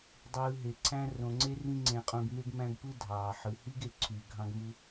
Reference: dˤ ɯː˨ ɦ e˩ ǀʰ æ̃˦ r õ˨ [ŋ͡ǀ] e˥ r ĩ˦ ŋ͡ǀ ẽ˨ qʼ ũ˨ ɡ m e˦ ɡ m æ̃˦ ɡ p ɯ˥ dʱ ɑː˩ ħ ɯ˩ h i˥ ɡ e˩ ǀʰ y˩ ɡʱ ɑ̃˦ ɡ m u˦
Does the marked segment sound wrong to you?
no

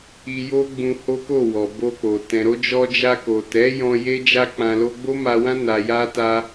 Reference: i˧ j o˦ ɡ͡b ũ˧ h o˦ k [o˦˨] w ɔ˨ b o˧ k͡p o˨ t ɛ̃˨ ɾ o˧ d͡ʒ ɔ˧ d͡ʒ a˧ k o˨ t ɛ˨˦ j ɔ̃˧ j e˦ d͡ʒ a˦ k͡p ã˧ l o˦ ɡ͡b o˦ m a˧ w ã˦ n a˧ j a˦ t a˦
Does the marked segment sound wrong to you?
no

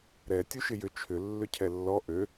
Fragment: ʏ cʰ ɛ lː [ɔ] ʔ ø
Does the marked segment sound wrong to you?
no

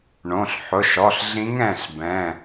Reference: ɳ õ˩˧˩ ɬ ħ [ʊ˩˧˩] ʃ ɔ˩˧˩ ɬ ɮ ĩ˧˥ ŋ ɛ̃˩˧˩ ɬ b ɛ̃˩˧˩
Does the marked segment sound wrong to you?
no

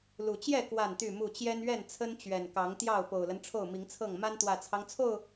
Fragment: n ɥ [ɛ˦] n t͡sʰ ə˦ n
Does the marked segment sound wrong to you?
yes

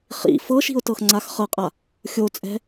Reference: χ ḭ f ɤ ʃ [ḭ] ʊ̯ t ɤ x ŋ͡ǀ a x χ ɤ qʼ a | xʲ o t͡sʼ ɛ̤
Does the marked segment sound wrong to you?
yes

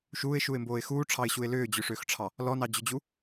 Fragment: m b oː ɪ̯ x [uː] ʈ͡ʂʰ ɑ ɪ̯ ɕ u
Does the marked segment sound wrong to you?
no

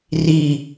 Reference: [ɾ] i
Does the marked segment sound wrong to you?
yes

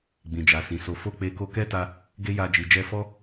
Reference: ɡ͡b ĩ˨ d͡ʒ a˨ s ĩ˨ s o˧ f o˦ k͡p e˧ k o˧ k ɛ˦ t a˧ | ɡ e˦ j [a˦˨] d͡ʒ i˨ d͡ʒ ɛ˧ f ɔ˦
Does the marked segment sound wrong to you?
yes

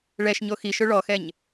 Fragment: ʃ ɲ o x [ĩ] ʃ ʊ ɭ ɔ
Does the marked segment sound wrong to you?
yes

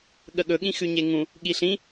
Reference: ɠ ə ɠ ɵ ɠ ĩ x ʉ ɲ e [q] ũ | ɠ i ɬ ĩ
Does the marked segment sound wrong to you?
yes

